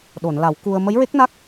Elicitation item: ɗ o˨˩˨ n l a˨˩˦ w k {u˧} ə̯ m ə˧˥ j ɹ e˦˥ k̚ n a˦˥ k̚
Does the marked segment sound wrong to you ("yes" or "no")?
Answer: no